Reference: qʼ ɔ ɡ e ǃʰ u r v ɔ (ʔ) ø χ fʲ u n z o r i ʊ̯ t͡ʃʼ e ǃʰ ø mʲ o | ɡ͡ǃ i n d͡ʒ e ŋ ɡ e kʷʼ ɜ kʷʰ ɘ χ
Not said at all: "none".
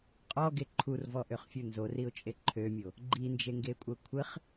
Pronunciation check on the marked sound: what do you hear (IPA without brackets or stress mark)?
ʔ